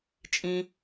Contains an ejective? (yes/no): yes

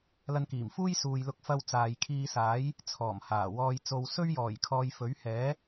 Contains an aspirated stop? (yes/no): yes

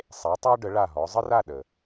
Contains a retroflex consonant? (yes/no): yes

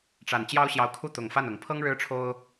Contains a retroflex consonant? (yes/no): yes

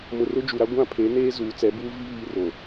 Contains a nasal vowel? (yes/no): yes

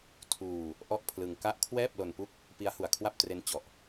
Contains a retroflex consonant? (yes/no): no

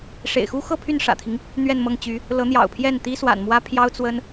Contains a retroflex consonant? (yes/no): yes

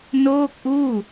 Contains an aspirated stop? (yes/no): no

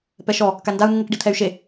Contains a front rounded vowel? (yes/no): yes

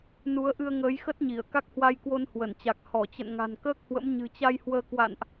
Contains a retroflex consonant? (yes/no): no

